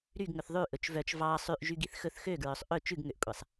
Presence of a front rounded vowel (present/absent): present